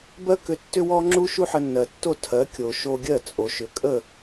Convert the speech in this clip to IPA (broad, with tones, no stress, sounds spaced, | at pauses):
b ɜ˥ k ʏ˧ tː ʏ˥ w ɔ˥ ŋ͡ǁ u˥ ʃ u˥ ħ ə˧ nː ɜ˩ tː o˥˩ tʰ ɜ˩˥ kʲ o˩ ʃ o˧ ɡʲ ɜ˥˩ t͡sʼ o˩ ʃ ʏ˩ kʼ ə˥˩